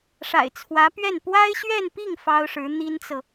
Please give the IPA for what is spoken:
ʂ a̰˨˩ ɪ̯ t͡sʰ w ä˧˥ p ɥ ɛ˥˩ n p w a˥ ɪ̯ ɕ ɥ ɛ˥˧ n p i˥˩ ŋ f ɑ˥ ʊ̯ ʂ ɻ̩˧˥ n̪ i˥ n t͡s ɤ˨

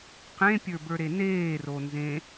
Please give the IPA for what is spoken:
q ẽ pʲ ə˞ b ə˞ ɾ e n eː r o n z ẽ

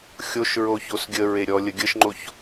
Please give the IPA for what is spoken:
xʲ o ʃ ɹ o ç o s ɡʲ ə ɹ e ɾʲ ɔ lʲ ə ɡʲ ə ʃ ŋ͡ǃ o ç

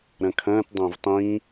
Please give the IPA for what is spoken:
ɾ ɐ̃ kʰ ɐ̃ː t dˤ ɐ̃ː v tˤ ĩ

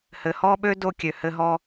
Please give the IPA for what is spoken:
h ɘ˨ h ɔ˥ ɓ ø˥ d o˦ kʲ ø˨ h ɘ˦ ɦ ɔ˦

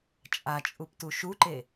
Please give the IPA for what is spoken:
t͡ʃʼ a t͡ʃʼ u p t u ʃ u ǃ e

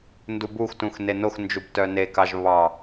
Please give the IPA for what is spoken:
n d u b u x t ũ x n e n o x n d͡ʒ u b t œ n e k ɑ ʒ β ɑ

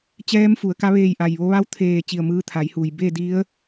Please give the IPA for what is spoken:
t͡ɕ ɛː˧˥ m f u˩˧ ə̯ k a˧˥ ʋ eː˧˩ j ʔ a˩ j ʋ o˧ ʋ a˧˥ w t̪ʰ eː˧˩ t͡ɕ i˧˩ ə̯ m ɯː˧ t̪ʰ a˩˧ j h uː˩ j b e˥˨ d i˧˥ ə̯

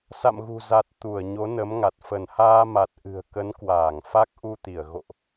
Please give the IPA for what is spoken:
s a̰˧˨ m ɣ ṳ˨˩ z a˨˩ t̚ t̪ u˧˩ ə̯ ɲ o˨˦ n ə˨˦ m ŋ a˨˩ t̚ f ə˧˩ n h aː˧ m a˨˩ t̚ ʔ ɨ̤˨˩ ə̯ k ə˨˦ n k w aː˧˩ ŋ f a˦˥ k̚ ʔ u˧ t̪ i˧˩ ə̯ ɣ o̰˧˨ ʔ

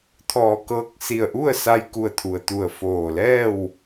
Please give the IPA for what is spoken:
t̪ʰ ɔː˧˩ k ɤː˧ k̚ s i˧˩ ə̯ ʔ u˥˨ ə̯ s a˧ j k u˧˩ ə̯ t̪ʰ u˩ ə̯ t̪ u˧˩ ə̯ f oː˧˩ l ɛː˥˨ w

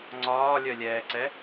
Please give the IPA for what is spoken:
ŋ͡ǀ ɒː lʲ œ lʲ ɛː ǀ ɛ

